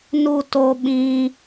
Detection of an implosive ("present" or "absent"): present